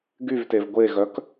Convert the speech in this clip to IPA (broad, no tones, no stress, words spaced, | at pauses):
ɡyvtev ɡʷeɣœk